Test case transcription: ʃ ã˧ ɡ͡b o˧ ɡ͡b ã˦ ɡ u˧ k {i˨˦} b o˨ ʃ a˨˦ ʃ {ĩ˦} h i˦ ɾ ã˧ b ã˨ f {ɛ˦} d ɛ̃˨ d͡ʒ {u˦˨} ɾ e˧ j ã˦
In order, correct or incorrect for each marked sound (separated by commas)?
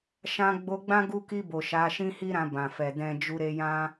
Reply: incorrect, correct, incorrect, incorrect